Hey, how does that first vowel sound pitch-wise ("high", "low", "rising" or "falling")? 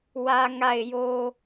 low